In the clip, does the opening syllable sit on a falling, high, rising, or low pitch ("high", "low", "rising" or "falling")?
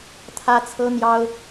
high